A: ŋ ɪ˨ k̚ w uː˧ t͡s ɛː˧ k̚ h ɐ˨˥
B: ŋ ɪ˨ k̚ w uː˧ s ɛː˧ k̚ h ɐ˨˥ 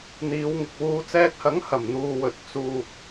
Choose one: A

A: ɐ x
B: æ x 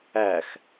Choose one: B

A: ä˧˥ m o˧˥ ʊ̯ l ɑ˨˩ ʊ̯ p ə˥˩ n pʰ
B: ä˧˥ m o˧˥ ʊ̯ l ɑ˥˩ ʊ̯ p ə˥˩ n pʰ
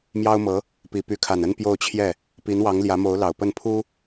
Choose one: A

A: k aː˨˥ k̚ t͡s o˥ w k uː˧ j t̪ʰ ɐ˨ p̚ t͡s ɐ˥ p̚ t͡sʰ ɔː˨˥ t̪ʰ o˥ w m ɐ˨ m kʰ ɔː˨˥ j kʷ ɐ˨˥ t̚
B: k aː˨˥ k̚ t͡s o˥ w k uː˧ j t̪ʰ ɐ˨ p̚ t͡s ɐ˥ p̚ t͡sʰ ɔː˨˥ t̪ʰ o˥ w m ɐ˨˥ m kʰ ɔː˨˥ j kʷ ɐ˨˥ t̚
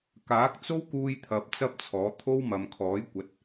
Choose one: A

